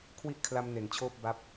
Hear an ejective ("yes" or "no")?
no